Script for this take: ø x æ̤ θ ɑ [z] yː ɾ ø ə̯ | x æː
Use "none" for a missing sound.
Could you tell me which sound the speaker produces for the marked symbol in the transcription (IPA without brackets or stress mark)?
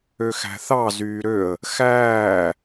z